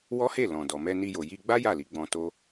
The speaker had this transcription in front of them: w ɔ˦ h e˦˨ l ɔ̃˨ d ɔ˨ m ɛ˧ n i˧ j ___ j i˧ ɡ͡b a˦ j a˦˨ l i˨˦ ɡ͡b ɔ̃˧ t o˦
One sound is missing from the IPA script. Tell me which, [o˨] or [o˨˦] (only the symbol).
o˨